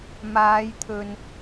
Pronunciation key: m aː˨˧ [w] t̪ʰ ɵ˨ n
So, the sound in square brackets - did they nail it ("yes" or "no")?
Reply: no